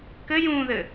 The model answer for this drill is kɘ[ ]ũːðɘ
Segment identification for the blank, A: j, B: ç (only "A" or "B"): A